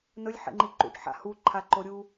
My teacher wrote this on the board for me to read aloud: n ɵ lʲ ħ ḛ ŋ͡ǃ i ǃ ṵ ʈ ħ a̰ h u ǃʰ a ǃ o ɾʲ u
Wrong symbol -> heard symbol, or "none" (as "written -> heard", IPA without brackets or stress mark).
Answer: none